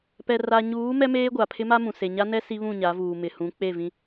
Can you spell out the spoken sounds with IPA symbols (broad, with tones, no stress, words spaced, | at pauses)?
pɛ˨ ra˨ ɲuː˨˦ mɛ˦meː˦ ɡʷa˨pʰɪ˦ma˦mũ˨ se˨ɲa˦nɛ˦ si˦βũ˦˨ɲa˨˦vuː˨ mɪ˨hũ˨˦ k͡pe˦˨vĩ˦